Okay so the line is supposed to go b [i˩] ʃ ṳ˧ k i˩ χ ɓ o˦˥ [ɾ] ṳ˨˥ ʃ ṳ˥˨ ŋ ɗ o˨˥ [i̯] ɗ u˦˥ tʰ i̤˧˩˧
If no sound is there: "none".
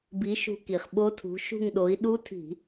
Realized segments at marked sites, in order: i˨˥, tʰ, i̯

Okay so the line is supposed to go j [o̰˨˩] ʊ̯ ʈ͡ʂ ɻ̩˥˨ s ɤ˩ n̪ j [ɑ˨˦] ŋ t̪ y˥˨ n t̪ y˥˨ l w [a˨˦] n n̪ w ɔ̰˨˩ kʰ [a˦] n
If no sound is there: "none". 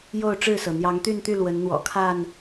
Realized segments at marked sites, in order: o˥˨, ɑ˨˦, ə˨˦, a˥˨

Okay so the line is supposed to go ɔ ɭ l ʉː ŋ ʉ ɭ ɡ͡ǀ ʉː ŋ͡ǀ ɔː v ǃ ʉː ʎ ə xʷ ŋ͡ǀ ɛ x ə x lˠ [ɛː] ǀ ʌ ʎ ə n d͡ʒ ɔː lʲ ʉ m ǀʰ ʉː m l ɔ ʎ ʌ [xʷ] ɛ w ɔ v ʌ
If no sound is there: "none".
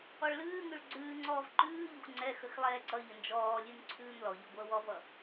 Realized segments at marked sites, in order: ɛː, ɡʷ

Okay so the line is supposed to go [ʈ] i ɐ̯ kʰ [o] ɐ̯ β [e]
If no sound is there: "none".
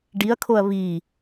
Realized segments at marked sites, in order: ɖ, o, i

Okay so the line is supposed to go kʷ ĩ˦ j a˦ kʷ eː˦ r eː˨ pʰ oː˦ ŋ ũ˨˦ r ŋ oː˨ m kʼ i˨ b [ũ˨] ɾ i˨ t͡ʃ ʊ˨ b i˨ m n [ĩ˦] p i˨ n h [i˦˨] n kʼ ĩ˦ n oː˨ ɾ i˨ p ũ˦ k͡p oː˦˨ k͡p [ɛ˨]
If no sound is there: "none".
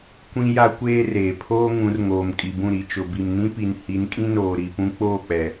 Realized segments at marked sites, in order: ũ˦˨, ĩ˦, i˨˦, ɛ˨

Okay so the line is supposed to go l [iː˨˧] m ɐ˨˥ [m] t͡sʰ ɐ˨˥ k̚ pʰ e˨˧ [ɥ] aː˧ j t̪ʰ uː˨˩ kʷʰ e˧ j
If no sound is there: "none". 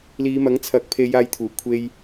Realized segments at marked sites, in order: iː˨˧, ŋ, j

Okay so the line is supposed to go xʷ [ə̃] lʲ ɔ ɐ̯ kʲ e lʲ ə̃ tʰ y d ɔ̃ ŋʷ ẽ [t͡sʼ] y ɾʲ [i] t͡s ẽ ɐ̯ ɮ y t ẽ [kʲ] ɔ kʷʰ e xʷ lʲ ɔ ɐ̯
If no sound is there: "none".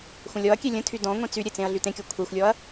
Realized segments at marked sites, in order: ə̃, t͡s, e, kʲ

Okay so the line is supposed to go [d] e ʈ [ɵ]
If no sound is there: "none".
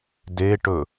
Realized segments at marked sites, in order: d, ɵ

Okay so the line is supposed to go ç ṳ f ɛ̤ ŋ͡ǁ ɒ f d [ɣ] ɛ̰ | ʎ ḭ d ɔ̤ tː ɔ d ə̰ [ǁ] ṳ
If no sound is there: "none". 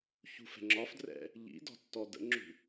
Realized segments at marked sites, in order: r, ŋ͡ǁ

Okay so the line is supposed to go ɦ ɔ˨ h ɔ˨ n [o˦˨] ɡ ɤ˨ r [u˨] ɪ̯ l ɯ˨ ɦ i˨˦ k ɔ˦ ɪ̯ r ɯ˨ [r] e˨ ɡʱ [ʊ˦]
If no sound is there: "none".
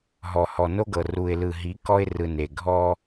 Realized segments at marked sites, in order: o˦, u˨, n, ɔ˦

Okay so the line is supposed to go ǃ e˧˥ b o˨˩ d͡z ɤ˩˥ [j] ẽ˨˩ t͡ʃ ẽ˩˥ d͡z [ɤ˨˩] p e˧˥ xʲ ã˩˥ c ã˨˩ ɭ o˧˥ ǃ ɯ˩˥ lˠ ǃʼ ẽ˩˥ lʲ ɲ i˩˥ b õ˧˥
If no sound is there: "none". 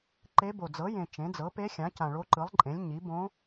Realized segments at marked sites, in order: j, ɤ˩˥

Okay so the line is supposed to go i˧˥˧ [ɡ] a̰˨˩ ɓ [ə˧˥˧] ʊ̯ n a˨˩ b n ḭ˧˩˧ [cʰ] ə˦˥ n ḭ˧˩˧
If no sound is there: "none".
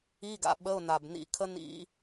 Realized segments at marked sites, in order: ɡ, ə˧˥˧, kʰ

